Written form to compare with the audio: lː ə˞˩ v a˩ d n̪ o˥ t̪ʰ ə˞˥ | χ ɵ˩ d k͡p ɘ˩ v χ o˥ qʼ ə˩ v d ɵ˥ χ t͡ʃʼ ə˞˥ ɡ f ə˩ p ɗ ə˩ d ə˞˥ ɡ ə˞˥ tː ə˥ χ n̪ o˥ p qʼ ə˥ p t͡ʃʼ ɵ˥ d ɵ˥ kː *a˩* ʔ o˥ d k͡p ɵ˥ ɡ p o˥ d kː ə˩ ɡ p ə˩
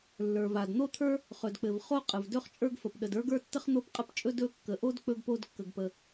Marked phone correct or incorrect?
incorrect